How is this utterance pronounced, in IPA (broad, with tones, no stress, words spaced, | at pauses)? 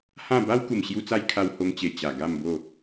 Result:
hã˥˧ ba˦wku˨˩mɕju˧t͡sa˧j kʰa˧who˧ŋt͡ɕe˨˩ t͡ɕa˨˩ ɡa˥˧mbo˥˧